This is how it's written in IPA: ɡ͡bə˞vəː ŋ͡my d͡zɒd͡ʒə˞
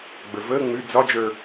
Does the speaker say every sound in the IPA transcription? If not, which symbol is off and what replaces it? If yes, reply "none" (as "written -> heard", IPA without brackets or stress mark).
none